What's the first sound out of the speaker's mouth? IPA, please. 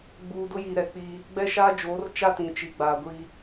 ɡ͡b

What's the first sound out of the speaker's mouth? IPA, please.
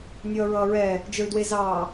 nʲ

